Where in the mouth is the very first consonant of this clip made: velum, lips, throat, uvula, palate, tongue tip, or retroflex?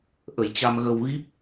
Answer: throat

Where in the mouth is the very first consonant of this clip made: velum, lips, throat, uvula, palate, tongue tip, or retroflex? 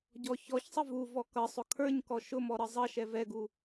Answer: palate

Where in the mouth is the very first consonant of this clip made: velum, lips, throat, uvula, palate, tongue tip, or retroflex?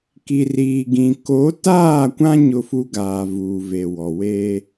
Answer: velum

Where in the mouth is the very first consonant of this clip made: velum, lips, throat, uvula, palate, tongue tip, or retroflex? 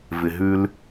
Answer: lips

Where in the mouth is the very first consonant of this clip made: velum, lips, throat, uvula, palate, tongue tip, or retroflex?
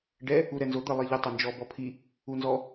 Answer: retroflex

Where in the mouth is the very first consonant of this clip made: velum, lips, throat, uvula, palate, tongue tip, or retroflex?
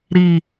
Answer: tongue tip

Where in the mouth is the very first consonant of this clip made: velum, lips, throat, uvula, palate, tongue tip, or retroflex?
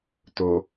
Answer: tongue tip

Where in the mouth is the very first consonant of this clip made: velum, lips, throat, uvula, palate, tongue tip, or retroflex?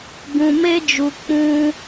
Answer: velum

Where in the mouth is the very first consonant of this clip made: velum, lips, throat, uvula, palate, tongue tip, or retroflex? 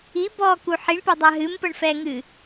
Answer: lips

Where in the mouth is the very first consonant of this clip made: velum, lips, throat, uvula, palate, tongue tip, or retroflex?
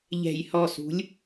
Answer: palate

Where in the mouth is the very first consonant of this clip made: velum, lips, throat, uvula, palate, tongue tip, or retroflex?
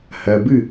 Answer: throat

